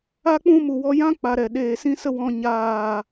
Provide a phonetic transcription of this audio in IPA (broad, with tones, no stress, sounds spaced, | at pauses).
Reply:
a˦ k͡p ũ˦ m u˨ w ɔ˧ j ã˦ k͡p a˨ ɾ ɛ˨ ɗ eː˨ s ĩ˦ s ə˦ w ɔ̃˧ ɲ aː˦˨